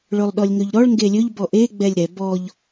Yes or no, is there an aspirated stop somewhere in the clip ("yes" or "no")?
no